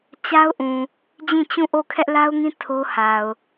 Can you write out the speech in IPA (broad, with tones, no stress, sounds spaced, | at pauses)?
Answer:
t͡ɕ a˦ ʊ̯ ʔ ũ˨ | d͡ʑ ĩ˦˨ t͡ɕ ũ˦˨ ʔ o˦˨ kʰ ɛ˦ ʔ l a˦ ʊ̯ ŋ ĩ˦ tʰ o˦ h a˨ ʊ̯